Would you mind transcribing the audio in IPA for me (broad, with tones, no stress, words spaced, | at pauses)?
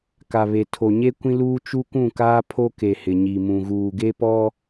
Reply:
ka˨βe˨ tʰo˨ɲe˦ kʷĩ˦luː˦ t͡ʃu˦ kũ˦˨kaː˦ pʰo˦ke˨ hɪ˨ɲi˨mũ˨ ɣuː˨ɡe˦pɔ˦